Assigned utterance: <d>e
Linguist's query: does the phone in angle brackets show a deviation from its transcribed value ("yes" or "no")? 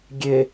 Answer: yes